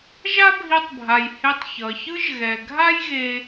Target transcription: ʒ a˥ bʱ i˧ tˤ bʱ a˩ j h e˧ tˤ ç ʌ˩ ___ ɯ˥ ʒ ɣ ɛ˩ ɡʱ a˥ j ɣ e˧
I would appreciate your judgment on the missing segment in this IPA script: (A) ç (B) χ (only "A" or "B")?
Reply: A